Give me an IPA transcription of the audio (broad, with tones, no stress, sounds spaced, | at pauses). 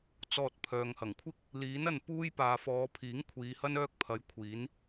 t͡s ɔː˧ t̚ pʰ œː˨ ŋ h ɐ˨˩ ŋ kʷʰ ɪ˥ k̚ | l iː˨˥ n ɐ˧ n p uː˥ j p aː˨ f ɔː˨˧ pʰ iː˨˥ ŋ kʷʰ iː˨˧ h ɐ˥ n œː˥ k̚ pʰ ɐ˨˧ j kʷʰ iː˨˥ n